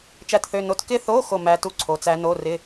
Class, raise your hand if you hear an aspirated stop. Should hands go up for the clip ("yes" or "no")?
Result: yes